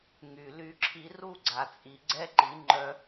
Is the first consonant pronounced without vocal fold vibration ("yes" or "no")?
no